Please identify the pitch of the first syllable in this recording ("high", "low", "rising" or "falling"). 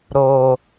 low